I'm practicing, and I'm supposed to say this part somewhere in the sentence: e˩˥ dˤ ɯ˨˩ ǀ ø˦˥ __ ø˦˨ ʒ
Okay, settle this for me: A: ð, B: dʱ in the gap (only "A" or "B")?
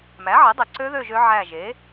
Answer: A